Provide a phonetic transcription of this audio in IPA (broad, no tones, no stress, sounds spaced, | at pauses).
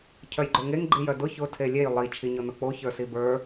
cʰ œ j ɡ͡ǃ o ŋ e ŋ ɡ͡ǃ i j œ d ʊ ç ʊ tʰ e lʲ e j lˠ i t͡ʃʰ i ɲ ʊ n ʊ k͡p o ç ə˞ s i b ə˞